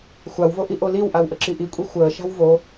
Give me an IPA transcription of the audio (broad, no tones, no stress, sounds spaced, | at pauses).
xʷ a w v o ʔ i ʔ o l i w ʔ a w ʔ ə ǁ i ʔ i kʷʼ e xʷ əː ʃ a̤ w v o